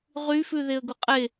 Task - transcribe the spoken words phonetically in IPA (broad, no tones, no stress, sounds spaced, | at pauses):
ʁ y f ʉ ð e ə̯ ɡ u qʼ e